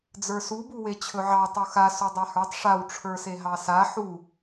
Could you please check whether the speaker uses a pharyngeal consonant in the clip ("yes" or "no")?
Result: yes